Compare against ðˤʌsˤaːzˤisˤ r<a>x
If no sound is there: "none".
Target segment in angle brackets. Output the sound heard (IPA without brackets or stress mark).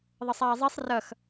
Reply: ʌ